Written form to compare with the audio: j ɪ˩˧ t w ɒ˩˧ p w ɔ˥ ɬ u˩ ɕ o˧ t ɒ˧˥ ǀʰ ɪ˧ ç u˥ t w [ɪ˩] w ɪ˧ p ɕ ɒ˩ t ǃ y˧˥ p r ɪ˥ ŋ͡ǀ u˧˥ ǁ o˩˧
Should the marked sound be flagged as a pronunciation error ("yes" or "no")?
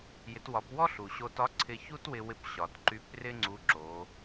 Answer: yes